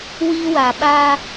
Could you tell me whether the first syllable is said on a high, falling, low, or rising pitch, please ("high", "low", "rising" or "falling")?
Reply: high